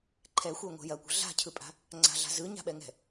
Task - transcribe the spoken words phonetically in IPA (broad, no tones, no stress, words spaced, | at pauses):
ǃʰɛxʷɛŋʷɛ̤ jɐkʷə̤ ɮa̤cʰɯpʼa̤ | ŋ͡ǀa̤ɮa̤ zɯɲa̤ɓɛŋɛ̤